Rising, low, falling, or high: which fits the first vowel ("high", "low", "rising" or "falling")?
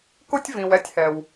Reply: high